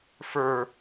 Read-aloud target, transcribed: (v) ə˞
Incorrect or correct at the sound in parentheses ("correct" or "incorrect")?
incorrect